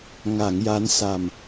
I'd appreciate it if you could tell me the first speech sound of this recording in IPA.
ŋ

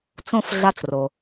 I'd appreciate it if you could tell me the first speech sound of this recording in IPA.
t͡s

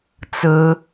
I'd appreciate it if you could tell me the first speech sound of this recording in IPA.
t͡s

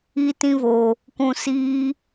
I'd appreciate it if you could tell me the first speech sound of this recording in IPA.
iː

